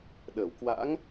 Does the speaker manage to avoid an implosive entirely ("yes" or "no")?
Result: no